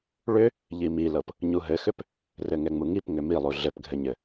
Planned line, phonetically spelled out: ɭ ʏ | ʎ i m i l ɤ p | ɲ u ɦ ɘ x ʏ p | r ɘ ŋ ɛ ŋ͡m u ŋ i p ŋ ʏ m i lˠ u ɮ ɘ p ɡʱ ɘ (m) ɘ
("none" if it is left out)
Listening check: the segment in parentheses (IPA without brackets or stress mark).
ɲ